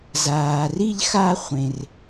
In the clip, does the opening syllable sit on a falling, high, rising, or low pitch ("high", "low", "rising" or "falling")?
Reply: low